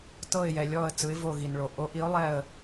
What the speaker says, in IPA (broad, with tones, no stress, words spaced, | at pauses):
tɤ˥˧ɪ̯jɛ˨lʲɔ˥˧ə̯ t͡sɯ˧˥ɪ̯vo˥˧ ɣi˨nɭo˨ ʔo˧˥ʔi˧˥ʊ̯ lˠɛ˥˧ə̯